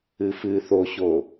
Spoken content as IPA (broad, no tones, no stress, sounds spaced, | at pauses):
ɨ f ɨ θ o ɕ o